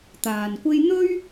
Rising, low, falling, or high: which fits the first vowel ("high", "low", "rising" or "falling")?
low